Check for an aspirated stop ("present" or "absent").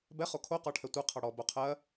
present